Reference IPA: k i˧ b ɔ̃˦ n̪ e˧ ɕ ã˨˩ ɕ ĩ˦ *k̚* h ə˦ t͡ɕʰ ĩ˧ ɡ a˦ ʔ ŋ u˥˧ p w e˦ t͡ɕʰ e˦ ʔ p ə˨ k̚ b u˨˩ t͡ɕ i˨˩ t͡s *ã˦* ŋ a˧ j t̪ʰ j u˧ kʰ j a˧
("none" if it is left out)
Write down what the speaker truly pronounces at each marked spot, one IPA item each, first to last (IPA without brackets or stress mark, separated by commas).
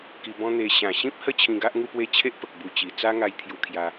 p̚, a˦